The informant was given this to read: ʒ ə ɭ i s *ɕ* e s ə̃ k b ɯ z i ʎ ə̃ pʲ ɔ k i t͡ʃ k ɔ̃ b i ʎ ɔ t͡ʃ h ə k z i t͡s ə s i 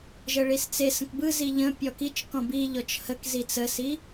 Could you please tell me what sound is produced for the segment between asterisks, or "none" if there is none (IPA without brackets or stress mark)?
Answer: t͡s